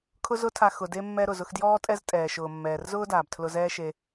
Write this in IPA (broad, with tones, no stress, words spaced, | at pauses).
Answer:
kʰʊ˥zʊ˥tʰa˧ xʊ˩de˧mːɛ˧ ɾʊ˩zʊ˧xdjɔː˥tʼɛ˥z tʼɛː˩ʃʊː˩mːɛː˩rzʊː˥ daː˩btʰlʊ˧zɛː˥ʃe˧